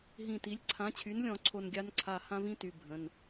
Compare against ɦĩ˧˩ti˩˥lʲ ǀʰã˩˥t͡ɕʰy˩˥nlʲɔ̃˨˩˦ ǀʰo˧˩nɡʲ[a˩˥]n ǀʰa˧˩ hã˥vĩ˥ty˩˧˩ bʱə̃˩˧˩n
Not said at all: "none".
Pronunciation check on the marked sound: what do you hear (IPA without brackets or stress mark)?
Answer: a˧˥